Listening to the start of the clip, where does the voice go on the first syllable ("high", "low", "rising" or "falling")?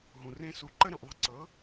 low